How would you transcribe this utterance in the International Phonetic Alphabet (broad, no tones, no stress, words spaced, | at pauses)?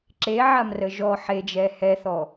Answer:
ǁeʕamrə ʒɔ ħed͡ʒɛ hɛθɔ